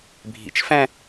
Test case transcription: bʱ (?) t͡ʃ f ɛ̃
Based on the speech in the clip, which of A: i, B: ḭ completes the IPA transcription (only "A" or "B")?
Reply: B